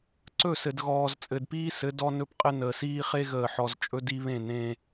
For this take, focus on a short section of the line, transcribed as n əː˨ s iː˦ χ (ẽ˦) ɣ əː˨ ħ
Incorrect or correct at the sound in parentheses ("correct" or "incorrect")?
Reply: incorrect